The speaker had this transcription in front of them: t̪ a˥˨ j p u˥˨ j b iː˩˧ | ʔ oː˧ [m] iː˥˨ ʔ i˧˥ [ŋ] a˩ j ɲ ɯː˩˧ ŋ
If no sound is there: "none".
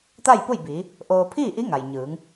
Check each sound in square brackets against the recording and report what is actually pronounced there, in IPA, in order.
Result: pʰ, ŋ

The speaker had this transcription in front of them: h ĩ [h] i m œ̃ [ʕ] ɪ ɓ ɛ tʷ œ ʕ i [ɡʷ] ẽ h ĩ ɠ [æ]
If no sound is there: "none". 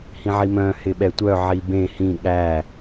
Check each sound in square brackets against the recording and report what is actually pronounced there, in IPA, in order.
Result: ʕ, h, b, æ

